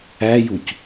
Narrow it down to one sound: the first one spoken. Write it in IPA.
æ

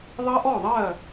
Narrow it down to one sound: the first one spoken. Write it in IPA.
ðˤ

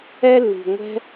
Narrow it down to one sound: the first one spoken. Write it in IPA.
ɛ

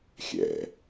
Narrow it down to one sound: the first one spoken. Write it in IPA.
xʲ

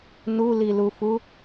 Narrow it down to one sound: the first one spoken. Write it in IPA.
n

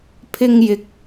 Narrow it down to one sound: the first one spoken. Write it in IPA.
pʰ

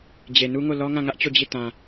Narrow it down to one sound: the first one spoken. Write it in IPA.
d͡ʑ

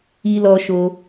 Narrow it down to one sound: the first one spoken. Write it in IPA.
i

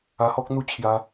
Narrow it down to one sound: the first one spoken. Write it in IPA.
a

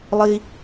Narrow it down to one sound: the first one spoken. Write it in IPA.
lˠ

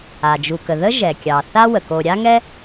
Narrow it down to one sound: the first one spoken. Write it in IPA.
a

